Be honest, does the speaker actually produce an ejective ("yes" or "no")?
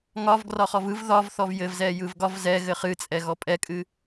yes